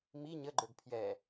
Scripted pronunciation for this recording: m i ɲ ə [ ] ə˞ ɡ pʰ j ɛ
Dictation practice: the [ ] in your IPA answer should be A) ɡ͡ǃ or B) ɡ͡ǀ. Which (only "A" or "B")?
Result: A